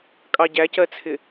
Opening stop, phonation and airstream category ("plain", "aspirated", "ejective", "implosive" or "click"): ejective